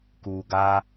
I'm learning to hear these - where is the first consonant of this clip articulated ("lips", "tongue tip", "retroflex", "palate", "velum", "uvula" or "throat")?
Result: velum